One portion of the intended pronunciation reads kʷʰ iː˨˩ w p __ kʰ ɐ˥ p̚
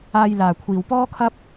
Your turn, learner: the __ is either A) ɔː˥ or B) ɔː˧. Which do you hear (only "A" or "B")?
A